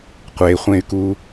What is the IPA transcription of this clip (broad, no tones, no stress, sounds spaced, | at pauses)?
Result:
qʷ e χʷ ẽ y̯ k uː